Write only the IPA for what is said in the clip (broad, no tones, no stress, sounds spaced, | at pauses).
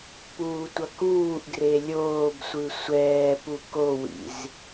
p uː tʷ ʌ k uː ʔ ɡ r e lʲ oː b sʷ ɯ sʷ ɛː p u k o w ḭ z